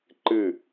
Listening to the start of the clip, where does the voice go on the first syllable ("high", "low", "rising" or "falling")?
falling